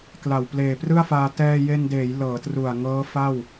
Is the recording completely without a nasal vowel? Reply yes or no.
yes